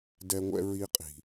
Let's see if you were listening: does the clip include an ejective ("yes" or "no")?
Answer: yes